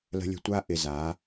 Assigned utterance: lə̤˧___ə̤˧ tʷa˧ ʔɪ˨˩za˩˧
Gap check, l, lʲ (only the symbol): lʲ